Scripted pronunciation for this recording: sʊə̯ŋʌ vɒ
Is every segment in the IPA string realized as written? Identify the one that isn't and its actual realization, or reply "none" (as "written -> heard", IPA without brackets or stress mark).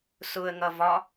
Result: none